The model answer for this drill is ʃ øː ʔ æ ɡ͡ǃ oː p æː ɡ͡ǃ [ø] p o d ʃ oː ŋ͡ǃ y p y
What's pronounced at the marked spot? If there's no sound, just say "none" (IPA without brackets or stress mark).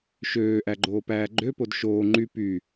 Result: ø